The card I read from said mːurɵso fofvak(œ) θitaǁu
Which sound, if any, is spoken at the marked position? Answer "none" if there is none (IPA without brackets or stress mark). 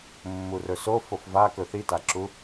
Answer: ɵ